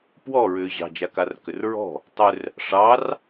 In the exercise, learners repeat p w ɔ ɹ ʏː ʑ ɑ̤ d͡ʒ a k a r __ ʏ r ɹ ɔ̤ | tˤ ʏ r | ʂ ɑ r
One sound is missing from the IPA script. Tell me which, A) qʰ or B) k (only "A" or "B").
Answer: B